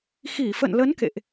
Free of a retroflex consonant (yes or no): yes